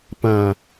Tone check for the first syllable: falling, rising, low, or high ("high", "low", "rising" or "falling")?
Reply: low